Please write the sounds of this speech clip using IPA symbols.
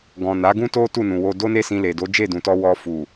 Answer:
ɡɔ̃˨na˨˦ ɡũ˦to˦ tu˦˨nũ˨wo˧ do˦ne˦sĩ˧le˨ do˨˦d͡ʒe˦˨dũ˨tɔ˧ wɔ˧ fu˨

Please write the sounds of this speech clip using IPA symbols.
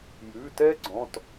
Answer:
jʉ˩˧˩tɛ˦˥ ɡ͡ǀɔ̃˩˧˩t

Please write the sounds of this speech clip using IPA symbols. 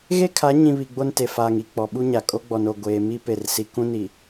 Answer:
ɣe˦kʰa˨˦ ɲĩ˨ βi˨ɡ͡bo˦nte˨ faː˨ŋi˨ k͡pɔ˨ɓu˦ɲa˨ kʼo˦ɡ͡bɔ˨no˨ ɡʷeː˨mi˦ pe˦˨rsi˦ kũ˦ni˨

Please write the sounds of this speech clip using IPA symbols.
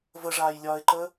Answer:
vəʐaːjlʲɒːɪ̯ǃəː

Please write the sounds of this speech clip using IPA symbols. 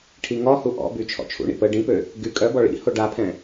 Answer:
ʈʰiŋɔhu ʔɔ̰by t͡ʃʰɔ̰t͡ʃʰṵɳḭ pə ɖĩpø | ɡy kʼœbɔ ɭḭ hoɖapʰɛ̃

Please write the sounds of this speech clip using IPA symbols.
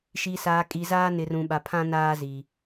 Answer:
ʃi˨saː˨ kʼi˨ zaː˦nɪ˨rũ˨ ɓa˨pʰã˦ naː˦zi˨

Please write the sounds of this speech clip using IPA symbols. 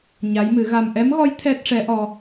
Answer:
ɲa˧˥jmɨ˨˩˦ɣa˧m ʔɛ˧˥mɣɔ˧˥j t̪ʰɛ˦˥t̚ʂɛ˧˥ʔɔ˧

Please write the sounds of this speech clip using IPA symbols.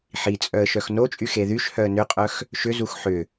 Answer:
ħit͡sʼœə̯ ʃœxnot͡ʃʼy xeðyʃhœə̯ nʏqʼœx | ʃʏzux ħʏ

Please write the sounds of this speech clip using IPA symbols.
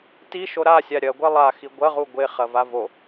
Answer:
tiʃo ɾasʲa ɾʲɐɡʷe lˠaxi ɡʷɐʁu ɡʷeχɐva vo

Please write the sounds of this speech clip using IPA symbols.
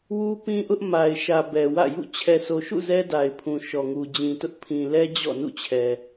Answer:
wu˦ pĩ˦ʔʊ˦ʔ ma˨ɪ̯ʃä˨ bɛ˨wä̰˦˨jṵ˦˨ t͡ɕʰɛ˨so˨ʃṵ˦˨ zɛ˦da˨ɪ̯pʰũ˨ ʃɔ˨ŋu˨d͡ʑĩ˨tʊ˦ʔ pʰĩ˨lɛ˦ d͡ʑɔ̰˦˨nṵ˦˨t͡ɕʰɛ˨

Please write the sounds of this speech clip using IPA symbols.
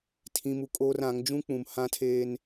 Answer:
tʰĩ˦mu˦kʼoː˦r ã˨˦ŋ d͡ʒũ˦k͡pũ˨m hã˦tʰeː˦n

